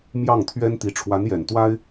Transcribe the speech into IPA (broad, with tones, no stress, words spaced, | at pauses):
mjɑ˥˩ŋt̪ʰɥɛ˥nt̪i˧˥ ʈ͡ʂʰwa˧˥njɛ˨˩nt̪wa˥ɪ̯